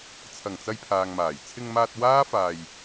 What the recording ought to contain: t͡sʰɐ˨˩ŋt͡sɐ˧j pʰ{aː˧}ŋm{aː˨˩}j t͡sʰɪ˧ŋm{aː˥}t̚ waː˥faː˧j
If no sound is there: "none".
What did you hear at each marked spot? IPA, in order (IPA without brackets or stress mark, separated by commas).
aː˨, aː˨˩, aː˧